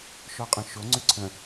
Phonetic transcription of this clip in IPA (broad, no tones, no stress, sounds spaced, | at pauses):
ʃ ɔ qʼ ə̃ ʃ o ŋ͡ǀ y ǀʰ ə̃